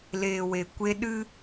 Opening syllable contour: low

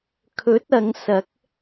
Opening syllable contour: rising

